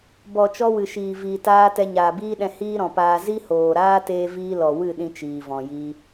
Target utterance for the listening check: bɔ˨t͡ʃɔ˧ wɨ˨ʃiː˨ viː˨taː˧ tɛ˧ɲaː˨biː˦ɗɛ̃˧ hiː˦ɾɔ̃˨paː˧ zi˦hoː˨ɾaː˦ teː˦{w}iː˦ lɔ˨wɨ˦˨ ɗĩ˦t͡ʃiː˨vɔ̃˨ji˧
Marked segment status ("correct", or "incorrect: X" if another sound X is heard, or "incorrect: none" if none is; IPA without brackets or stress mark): incorrect: v